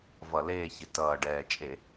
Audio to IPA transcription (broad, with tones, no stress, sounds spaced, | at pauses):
v ʌ˧˩˧ l eː˦˨ ç ɪ˨˩ t ʌː˨˩ ɖ ɛː˨˩ t͡ʃʼ e˧˩˧